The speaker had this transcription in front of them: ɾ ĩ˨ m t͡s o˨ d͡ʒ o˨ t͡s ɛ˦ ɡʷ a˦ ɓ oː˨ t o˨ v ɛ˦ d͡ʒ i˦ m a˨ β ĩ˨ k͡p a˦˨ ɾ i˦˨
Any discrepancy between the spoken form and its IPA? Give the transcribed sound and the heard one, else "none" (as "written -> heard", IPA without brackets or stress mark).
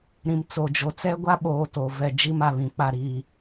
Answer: none